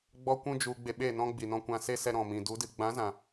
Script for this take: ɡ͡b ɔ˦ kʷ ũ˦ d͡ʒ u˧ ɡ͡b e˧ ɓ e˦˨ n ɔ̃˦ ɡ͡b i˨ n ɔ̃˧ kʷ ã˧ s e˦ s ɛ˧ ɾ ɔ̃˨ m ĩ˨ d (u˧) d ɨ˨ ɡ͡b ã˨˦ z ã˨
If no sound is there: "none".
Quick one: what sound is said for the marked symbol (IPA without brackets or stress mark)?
u˨˦